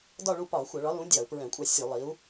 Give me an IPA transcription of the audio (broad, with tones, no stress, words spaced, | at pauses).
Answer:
dɒ˦˨ɭu˦˨ pɒ˧˩˧ xʷʌ˧˩˧ɭɒ˨˥lũ˨˥ dʲɑ˧˩˧u̯pɹɛ̃˧˩˧kʷʼɑ˦˨ sʲu˧˩˧lˠi˨˥u̯